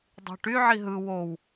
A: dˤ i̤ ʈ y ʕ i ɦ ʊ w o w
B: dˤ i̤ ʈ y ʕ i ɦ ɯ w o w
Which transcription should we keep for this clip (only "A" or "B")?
B